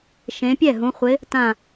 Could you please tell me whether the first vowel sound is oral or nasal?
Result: nasal